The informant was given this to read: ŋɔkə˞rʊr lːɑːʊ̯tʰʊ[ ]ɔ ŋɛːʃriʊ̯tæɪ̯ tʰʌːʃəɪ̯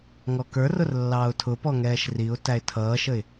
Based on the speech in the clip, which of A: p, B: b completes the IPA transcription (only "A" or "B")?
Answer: A